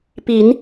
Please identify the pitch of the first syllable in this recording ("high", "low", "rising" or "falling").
rising